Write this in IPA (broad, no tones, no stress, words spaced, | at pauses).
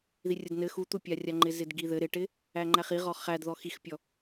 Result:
ðirʲədnɘ xut̪upʲarʲa ŋ͡ǃɪzɪdɡiðɘ ɾɪʈɪ | æŋ͡ǃæχiʁɔ χæd ðɔxixpʲɔ